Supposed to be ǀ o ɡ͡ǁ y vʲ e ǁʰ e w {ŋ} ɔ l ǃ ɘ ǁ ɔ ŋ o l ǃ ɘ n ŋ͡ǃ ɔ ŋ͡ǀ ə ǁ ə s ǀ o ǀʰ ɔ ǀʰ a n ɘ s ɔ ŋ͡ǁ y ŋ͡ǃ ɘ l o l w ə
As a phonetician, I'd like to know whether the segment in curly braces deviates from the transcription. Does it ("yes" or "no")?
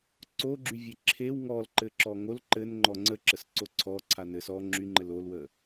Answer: no